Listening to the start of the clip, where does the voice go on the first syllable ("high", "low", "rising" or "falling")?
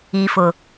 low